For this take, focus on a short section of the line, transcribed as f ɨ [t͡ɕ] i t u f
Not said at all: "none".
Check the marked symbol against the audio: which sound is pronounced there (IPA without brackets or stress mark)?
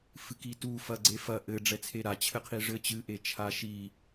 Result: k